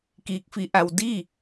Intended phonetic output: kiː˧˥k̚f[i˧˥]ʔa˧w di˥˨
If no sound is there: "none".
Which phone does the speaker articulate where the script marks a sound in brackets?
i˧˥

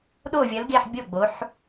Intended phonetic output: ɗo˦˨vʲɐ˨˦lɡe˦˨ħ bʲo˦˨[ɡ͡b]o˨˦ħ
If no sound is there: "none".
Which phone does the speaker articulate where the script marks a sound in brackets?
ɡ͡b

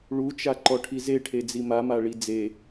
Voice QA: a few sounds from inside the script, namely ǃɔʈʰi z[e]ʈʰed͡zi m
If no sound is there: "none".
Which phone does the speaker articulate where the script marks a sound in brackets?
e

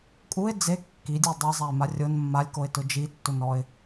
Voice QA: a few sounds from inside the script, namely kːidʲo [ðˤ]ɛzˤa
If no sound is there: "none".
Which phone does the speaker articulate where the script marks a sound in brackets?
dˤ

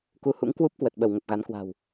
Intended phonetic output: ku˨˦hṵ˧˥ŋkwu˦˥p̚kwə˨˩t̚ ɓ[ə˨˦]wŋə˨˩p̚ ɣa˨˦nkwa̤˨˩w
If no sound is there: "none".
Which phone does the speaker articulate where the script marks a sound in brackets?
ə˧˩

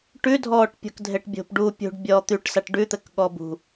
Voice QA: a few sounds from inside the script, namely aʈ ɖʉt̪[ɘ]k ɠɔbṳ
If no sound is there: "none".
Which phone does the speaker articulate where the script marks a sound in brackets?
ɘ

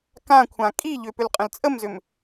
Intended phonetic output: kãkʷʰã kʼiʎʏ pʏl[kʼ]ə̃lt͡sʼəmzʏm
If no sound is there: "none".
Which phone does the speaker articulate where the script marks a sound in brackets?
qʼ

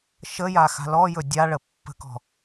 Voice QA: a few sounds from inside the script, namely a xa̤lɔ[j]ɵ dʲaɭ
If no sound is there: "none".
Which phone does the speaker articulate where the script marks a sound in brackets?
j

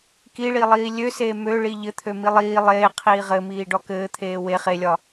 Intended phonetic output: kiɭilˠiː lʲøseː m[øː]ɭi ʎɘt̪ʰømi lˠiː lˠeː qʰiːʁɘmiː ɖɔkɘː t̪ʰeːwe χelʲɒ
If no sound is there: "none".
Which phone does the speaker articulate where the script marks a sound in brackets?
ø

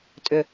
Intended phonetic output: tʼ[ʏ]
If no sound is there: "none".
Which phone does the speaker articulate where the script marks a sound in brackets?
ʏ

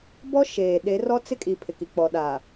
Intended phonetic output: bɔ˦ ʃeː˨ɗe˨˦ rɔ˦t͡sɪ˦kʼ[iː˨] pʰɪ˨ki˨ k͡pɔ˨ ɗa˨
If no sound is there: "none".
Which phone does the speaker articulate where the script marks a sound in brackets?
i˨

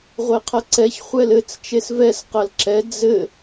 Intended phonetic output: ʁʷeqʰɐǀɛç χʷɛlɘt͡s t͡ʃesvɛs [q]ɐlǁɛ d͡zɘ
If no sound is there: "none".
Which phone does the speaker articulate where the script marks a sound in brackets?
q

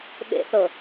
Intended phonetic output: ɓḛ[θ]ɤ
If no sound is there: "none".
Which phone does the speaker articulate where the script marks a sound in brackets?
θ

